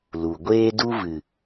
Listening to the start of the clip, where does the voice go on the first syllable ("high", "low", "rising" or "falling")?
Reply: low